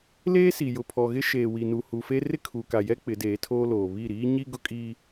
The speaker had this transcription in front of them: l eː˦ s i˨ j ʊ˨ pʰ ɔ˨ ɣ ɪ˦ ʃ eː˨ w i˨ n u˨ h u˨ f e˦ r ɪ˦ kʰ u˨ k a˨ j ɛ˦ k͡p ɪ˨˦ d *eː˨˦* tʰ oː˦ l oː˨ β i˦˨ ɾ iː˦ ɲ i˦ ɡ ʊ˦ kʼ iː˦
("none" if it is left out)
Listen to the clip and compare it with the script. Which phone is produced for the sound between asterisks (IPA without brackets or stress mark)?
eː˨˦